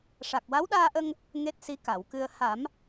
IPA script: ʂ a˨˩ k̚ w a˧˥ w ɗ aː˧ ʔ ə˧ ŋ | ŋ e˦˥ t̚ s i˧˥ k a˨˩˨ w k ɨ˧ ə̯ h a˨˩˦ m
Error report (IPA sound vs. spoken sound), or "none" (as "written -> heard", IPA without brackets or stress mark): none